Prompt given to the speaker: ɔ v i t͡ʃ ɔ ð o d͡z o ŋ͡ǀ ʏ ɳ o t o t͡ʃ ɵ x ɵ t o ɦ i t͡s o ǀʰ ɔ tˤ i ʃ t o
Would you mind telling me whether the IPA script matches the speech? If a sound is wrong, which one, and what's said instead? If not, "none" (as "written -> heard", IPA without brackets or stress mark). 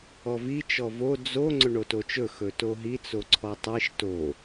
ð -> v